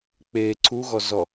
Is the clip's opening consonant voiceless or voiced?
voiceless